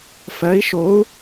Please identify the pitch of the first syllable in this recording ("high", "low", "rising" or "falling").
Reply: rising